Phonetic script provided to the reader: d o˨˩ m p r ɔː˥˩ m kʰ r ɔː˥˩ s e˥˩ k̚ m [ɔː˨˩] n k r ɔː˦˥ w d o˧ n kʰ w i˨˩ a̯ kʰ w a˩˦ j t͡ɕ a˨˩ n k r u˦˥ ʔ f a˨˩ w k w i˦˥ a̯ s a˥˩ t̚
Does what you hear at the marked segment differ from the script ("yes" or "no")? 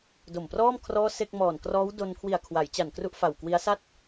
no